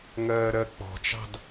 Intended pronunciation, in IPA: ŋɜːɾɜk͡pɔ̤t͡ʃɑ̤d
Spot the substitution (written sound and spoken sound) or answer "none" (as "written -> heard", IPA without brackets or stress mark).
none